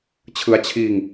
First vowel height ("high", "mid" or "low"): high